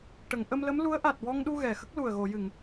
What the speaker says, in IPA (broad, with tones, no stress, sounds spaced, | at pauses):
ʈ ə˨˩˨ ŋ ʔ ə˧ m l ə˧˥ m l u˧˥ ə̯ ʔ a˨˩ t̚ w ɔ˧ ŋ ɗ u˧ ɣ ɛ˨˩ x ə˦˥ k̚ l u˨˩ ə̯ ɣ o˨˩˨ j ɨ˨˩˨ ŋ